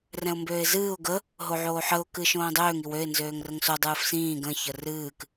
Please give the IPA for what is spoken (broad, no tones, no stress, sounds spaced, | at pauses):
r ɛ̃ ʊ̯ m b øː ɪ̯ z ɨː ʊ̯ ɡ ə | ɦ o ʕ oː ħ ə ʊ̯ k ɨː ʃ õː dˤ øː ŋ i w ø ɪ̯ n z øː ŋ r ə ŋ s o dˤ ɨː f s ĩː ɡ ə̃ ç ə r ɨː k